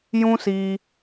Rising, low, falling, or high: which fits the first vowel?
high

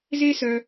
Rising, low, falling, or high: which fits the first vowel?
high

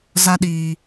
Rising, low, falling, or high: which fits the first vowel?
high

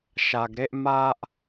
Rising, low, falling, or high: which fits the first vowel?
low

